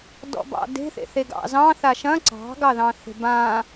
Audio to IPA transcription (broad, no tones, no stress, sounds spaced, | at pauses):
d ɔ̰ b ɑ̰ d e̤ θ ḛ θ e ɡ ɑ̰ z ɑ̃ θ a ʃ ɐ̃ ǀ ɑ̤ ɡ ɑ ð ɑ̃ θ e̤ b ã